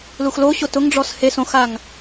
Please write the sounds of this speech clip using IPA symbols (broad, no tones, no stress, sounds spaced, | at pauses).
l u x l o ɕ o t ʊ ŋ ɖ͡ʐ ɔ s h e s õ x a ŋ